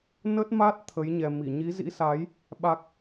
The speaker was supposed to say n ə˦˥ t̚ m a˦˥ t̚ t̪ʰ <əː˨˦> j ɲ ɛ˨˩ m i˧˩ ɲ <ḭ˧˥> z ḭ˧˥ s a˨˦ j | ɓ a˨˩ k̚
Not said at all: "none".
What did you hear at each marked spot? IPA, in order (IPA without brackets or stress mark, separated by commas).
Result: ə˨˦, i˨˦